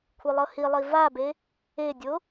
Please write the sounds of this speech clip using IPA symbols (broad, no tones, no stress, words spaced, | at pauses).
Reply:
kʷʰɯlˠɤhilˠi vabe | edʲo